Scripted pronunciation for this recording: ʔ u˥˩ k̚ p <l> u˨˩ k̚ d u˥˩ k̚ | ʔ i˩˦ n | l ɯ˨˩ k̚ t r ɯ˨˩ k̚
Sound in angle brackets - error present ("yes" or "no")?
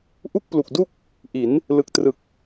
no